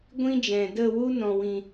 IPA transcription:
ɡʷ ĩ˦ d͡ʒ ɛ̃˨ d ə˦˨ w u˦ n ɔ̃˨ w ĩ˨

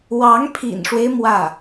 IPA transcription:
w ɑ˧˥ ŋ pʰ ḭ˨˩ n ʂ w e˦ ɪ̯ m w ä˥˩

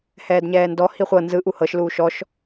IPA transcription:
h ɛː d ɲ ɛː n d ɔ h i χʷ ɤ n z ɯ ʔ u h ɤ ʃ l uː ʃ ɔ ʃ

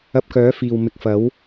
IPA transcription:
ɐ˧ p̚ k œː˨˥ f iː˨ w m ɪ˨˥ k̚ f ɐ˨˥ w

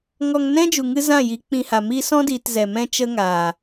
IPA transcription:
ŋ ɔ˧ ŋ n ɛ̃˦ d͡ʒ u˨ ŋ ɨ˦ z ã˦˨ j i˨˦ k͡p ĩ˧ h a˨ m i˧ s ɔ̃˦ d iː˨ t z ɛ˨ m ɛ̃˦ t͡ʃ ə˦ ŋ aː˨

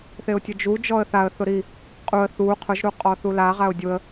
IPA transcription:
θ e ʊ̯ tʲ ʊ d͡ʒ u d͡ʒ ɔ ə̯ θ a ə̯ θ ʊ ɾ i | qʼ u ə̯ θ u qʰ ʊ ʒ ɾ u qʼ ɔ θ u l a ʁ a ʊ̯ dʲ ʊ ə̯

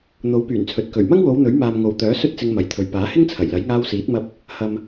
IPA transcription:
n̪ o˨˥ w p yː˨˩ n t͡sʰ ɵ˨ t̚ k ɵ˨˩ ɥ m ɐ˥ ŋ w o˨˧ w n̪ ɵ˨˥ ɥ m aː˨ m ŋ o˨ w t̪ œː˨˥ s ɵ˥ t̚ t͡s ɪ˧ ŋ m ɐ˨ j t̪ʰ ɵ˨ ɥ p aː˨˥ h ɪ˥ ŋ t͡sʰ ɐ˨˩ j l ɐ˨˥ j ŋ aː˧ w s iː˨˥ t̚ m ɐ˧ p̚ | h ɐ˨ m

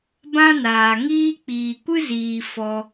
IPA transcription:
b ã˦ n aː˨ ŋ iː˦ k͡p iː˨ kʷ ɨ˦ z iː˨ f ɔ˧

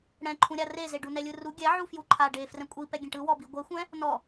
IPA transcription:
ɽ ɛ̃ ǃʰ ũ ɾʲ a r e z e ɖ u n ɛ lʲ ɯ r u ɡʲ ɛ ʕ u f j u ǃʰ a ɖ e f r ɛ̃ kʷʼ i p ɛ ɡʲ ẽ ʈ ɯ w ɔ b i ɡʷ ɛ xʷ ɛ̃ | n ɔ

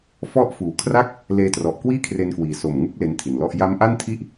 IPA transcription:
f ɔ˦˥ ʔ f uː˨˩ kʰ r a˥˩ k̚ | l eː˧ t r ɔ˨˩ ʔ k w iː˥˩ kʰ r e˧ n k w iː˨˩ s o˨˩ m ŋ u˦˥ k̚ l e˦˥ n tʰ i˨˩ n l ɔ˥˩ ʔ j a˦˥ m ʔ a˥˩ n tʰ i˥˩ ʔ

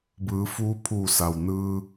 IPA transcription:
b ɯː˩˧ f uː˧˥ pʰ uː˧˩ s a˩ w n ɯː˧

